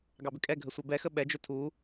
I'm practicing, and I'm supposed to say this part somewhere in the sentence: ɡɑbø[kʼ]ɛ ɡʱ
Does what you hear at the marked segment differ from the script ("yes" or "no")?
no